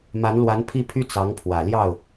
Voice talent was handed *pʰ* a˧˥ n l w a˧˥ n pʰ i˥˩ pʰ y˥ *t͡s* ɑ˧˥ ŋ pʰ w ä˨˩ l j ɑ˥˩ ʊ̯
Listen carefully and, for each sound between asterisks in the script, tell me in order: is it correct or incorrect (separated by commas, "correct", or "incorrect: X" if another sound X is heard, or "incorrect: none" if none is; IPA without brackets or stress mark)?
incorrect: m, correct